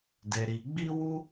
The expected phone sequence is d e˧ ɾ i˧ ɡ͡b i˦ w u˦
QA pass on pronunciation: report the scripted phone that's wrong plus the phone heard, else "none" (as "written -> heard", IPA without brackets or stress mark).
none